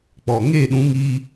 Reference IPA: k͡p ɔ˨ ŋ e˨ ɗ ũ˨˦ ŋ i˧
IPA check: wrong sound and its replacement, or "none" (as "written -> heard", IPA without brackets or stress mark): e˨ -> e˦˨